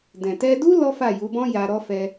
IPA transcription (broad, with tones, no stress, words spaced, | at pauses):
dɛ̃˨tɛ˧du˦ lɔ˦fa˦˨ju˨˦bɔ̃˦ ja˧ɾɔ˦fɛ˧